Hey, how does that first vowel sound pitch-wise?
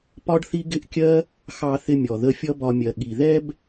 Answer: high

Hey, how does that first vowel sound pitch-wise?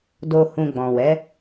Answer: low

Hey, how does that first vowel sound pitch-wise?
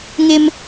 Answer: high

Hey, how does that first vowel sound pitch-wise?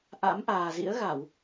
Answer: rising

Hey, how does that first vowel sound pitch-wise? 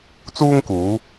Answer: high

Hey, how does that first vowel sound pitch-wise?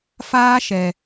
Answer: high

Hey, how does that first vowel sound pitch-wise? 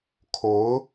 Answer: rising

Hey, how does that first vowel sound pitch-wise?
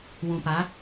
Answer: low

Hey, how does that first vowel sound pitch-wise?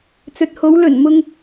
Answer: low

